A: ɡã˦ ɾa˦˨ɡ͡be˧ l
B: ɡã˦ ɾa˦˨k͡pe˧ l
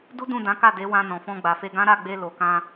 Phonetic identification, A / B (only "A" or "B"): A